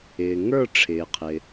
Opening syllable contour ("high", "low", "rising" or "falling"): low